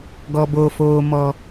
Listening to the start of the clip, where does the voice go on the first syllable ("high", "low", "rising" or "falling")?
high